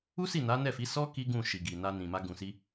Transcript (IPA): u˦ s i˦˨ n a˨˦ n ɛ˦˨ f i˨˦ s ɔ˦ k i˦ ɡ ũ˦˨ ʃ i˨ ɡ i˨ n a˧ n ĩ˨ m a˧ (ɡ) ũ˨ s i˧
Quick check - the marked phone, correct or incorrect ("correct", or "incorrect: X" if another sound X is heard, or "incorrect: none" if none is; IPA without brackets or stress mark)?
correct